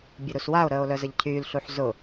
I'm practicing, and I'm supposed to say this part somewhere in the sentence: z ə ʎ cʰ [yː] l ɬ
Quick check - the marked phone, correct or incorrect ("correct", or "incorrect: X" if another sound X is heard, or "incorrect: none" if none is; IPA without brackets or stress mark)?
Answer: correct